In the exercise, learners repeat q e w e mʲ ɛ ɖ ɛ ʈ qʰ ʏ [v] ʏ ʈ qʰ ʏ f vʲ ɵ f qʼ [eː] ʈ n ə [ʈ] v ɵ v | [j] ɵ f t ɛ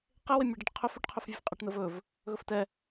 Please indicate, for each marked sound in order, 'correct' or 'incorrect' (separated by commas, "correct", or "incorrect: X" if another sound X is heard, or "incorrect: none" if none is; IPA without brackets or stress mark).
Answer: incorrect: f, incorrect: e, incorrect: none, incorrect: ɣ